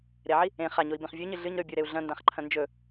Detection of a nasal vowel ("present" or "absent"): present